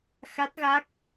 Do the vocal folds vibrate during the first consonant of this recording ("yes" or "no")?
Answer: no